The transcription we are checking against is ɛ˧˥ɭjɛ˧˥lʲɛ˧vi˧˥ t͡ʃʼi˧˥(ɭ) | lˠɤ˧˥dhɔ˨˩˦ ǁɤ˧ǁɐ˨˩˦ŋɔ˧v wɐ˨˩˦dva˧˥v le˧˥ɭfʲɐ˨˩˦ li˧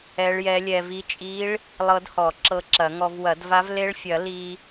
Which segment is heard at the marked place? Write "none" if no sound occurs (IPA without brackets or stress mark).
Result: ɭ